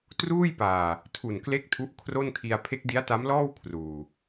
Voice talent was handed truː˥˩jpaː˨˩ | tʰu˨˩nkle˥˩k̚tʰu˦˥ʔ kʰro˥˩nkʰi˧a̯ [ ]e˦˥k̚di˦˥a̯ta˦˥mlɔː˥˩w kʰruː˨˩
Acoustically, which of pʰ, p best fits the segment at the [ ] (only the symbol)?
pʰ